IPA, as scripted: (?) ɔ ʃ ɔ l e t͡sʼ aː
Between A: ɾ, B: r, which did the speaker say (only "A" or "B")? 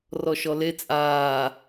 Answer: B